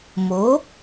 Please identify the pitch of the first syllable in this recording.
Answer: rising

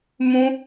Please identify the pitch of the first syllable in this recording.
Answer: high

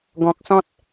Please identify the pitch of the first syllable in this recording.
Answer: low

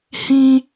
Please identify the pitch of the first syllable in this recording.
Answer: high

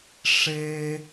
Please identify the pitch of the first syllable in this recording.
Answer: high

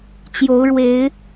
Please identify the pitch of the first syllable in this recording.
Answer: rising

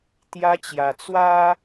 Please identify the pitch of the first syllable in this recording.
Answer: high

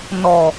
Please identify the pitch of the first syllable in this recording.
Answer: low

